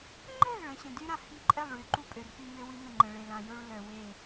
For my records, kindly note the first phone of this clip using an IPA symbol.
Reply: ŋ͡ǃ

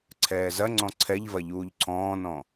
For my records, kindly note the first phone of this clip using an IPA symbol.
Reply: ǀʰ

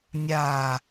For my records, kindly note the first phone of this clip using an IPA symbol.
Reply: nʲ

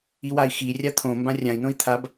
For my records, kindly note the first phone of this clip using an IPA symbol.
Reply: i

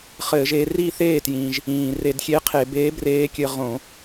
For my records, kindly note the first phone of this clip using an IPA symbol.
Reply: χ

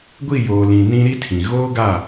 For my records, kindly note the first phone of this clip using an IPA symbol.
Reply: ɡʷ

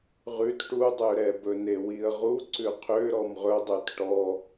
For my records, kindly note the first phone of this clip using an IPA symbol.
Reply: ʁ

